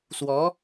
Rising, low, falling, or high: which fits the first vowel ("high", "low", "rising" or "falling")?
rising